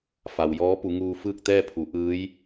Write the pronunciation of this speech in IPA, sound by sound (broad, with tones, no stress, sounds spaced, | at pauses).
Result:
f a˩ w j ɔː˧˥ p u˩˧ ŋ uː˧ f ɯː˥˨ k̚ t̪ ɛː˥˨ pʰ u˩˧ ʔ ɯː˧˥ j